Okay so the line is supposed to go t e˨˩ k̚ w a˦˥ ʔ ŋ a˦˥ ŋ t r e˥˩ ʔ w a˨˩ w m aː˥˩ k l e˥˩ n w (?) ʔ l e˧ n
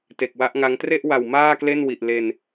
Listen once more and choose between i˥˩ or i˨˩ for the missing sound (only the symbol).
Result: i˨˩